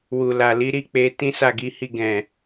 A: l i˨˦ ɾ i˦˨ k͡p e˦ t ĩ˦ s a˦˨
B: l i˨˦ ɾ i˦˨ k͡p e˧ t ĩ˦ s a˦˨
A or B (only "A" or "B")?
B